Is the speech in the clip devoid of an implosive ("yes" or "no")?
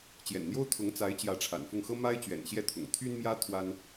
yes